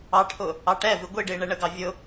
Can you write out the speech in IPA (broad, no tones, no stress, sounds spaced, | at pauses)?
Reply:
ɑ ʈʰ ʊ | ɑ ʈ ɛ v ɪ ɡʷ i ɖ ɪː ɳ ɛ ɳ ə ɡ ɑ vʲ ʊ